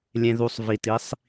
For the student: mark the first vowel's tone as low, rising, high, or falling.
low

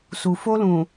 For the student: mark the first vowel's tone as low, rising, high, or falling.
low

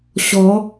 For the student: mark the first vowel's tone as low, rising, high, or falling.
rising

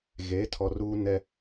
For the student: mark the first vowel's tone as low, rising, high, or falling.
rising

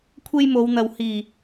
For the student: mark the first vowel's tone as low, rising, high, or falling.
high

